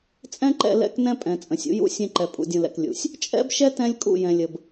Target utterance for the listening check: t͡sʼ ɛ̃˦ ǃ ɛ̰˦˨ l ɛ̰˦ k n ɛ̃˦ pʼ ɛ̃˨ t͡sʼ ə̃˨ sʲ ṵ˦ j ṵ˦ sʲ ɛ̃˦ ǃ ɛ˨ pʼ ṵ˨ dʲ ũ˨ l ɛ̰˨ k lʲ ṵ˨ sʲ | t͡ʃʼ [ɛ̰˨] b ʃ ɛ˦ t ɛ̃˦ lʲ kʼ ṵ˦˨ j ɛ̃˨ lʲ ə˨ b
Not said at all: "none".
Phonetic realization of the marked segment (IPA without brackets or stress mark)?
ɛ̰˦